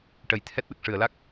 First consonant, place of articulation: retroflex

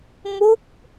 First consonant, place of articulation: labial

